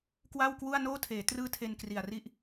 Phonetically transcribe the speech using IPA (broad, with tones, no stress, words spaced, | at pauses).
kwa˥˩wkwu˥˩a̯ noː˥˩tʰeː˩˦ trɯː˥˩tʰe˧nkri˨˩a̯ri˥˩ʔ